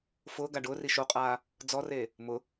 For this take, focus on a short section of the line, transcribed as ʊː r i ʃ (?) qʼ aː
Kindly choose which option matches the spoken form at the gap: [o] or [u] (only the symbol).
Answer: o